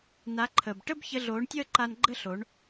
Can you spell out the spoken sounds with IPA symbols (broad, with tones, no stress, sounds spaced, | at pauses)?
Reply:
n a˨˦ ǃʰ əː˨ b ʈ ə˦ b ç ə˧ ɮ oː˨˦ ɳ tʲ əː˦ ǃ a˧ n ɡ͡ǃ ə˦ ɬ o˨˦ ɳ